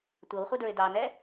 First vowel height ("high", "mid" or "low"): mid